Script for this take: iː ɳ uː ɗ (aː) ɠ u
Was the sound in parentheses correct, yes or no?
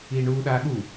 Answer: yes